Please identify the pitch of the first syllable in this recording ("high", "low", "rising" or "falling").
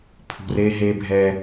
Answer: low